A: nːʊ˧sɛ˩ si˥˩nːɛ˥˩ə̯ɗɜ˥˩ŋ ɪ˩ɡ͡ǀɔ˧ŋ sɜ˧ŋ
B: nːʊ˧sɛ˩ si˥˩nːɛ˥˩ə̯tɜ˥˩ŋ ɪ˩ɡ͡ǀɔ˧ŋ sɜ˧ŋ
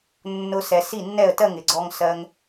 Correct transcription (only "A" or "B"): B